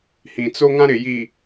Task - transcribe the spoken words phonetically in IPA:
h ĩ˨ t͡s o˦ ŋ ã˦ ɾ ɪ˨ j i˨

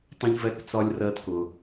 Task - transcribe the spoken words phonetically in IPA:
tˤ ə̃˧ ʎ v ɛ˧ k t͡s ɒ˧ lʲ r ɜ˧ t k ʊ˧

